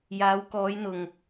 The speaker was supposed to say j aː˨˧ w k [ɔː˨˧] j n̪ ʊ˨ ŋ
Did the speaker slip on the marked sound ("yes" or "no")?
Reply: no